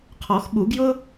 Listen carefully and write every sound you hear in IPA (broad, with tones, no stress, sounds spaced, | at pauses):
qʰ ɔ˨˩˦ x ɓ u˨˩˦ ɡ j ʊ˥